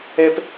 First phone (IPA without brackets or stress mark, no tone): ɛ